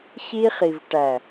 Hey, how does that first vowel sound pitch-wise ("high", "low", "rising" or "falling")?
high